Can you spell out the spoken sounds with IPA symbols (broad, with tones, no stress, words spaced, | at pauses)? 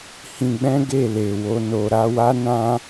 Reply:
hĩ˧ɡ͡bɛ̃˦ ɡe˦˨le˨wo˧ no˨ɾa˧wa˦ nã˦